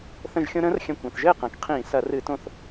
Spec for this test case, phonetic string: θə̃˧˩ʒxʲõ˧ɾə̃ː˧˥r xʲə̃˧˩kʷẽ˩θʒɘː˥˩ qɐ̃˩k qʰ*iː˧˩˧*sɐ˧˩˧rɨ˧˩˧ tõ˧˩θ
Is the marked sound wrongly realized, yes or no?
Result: yes